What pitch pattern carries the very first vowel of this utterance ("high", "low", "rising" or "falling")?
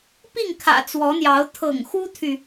falling